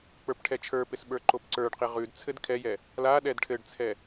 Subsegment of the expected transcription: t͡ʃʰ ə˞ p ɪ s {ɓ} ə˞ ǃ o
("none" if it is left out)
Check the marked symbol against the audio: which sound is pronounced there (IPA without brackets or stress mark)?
ɓ